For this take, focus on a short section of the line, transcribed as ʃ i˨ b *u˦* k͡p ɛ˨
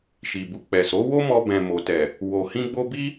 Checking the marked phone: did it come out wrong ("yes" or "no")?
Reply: yes